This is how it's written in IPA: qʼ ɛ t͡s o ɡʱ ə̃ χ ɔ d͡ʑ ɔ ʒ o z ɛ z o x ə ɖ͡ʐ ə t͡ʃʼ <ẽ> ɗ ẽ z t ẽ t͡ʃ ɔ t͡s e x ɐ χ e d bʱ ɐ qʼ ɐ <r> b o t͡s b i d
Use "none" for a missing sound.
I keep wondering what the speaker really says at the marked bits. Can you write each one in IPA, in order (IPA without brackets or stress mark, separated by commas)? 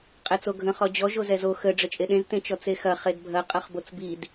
e, χ